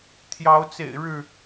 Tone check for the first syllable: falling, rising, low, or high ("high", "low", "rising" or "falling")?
rising